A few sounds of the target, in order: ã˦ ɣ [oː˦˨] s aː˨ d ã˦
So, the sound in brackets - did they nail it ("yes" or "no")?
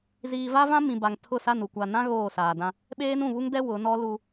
yes